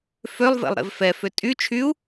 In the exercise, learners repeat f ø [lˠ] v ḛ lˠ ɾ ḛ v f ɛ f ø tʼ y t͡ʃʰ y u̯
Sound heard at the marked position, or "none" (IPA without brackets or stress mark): lˠ